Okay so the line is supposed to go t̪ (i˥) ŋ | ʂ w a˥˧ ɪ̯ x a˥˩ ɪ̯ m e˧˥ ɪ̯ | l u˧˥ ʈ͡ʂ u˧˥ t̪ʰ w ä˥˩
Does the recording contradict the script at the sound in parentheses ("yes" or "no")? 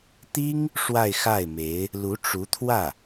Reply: no